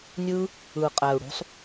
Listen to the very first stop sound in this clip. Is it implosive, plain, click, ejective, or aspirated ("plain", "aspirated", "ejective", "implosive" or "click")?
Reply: ejective